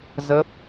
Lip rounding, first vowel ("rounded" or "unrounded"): unrounded